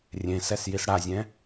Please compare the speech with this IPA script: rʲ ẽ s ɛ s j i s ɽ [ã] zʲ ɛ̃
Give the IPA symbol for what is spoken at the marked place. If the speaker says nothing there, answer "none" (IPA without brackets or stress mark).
a